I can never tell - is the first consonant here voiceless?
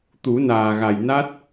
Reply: yes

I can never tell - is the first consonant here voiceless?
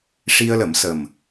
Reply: yes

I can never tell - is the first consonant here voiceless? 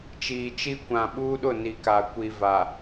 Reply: yes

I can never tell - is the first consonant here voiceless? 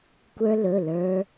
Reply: yes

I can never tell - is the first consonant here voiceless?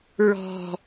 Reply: no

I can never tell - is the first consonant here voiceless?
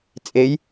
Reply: yes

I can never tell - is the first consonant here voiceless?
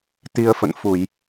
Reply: yes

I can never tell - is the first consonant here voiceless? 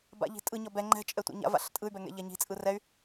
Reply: no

